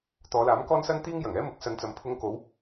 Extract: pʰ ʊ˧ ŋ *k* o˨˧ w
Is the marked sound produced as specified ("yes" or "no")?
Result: yes